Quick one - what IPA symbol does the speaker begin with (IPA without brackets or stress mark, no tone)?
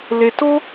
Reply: l